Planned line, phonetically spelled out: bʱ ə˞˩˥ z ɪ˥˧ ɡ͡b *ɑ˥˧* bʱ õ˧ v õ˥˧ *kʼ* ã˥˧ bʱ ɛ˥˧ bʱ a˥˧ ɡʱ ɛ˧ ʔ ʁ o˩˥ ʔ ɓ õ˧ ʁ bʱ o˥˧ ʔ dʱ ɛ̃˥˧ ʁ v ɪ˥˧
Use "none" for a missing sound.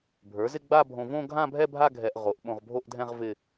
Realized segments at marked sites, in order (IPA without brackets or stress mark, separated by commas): a˥˧, ɡʱ